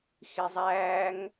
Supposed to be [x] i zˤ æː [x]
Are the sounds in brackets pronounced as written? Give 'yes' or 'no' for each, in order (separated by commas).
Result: yes, no